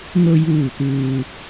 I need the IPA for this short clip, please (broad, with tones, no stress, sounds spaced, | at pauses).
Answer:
ŋ o˧ j uː˧˩ t̪ ɯː˩